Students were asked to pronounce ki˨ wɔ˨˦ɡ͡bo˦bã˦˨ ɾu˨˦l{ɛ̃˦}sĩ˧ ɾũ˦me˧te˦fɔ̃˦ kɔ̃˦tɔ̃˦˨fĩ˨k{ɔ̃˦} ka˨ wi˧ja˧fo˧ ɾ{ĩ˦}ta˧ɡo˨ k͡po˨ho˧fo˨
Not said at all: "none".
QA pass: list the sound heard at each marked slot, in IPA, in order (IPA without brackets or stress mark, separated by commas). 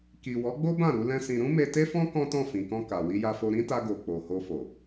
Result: ɛ̃˦, ɔ̃˧, ĩ˦